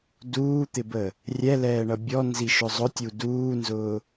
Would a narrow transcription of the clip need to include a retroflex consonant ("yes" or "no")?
yes